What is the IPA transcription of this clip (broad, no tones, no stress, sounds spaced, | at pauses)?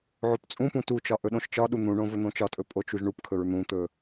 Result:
ʕ o p t͡sʼ ũ p ũ t u t͡ʃ ɒ ʔ ɵ ɗ õ ʃ t͡ʃ ɒ ɗ u n̪ ũ ɳ õ v ɵ n̪ õ t͡ʃ ɒ tʼ ɵ pʼ o t͡ʃ u ʒ ɳ u p kʰ ɵ ɹ n̪ ũ t̪ ɵ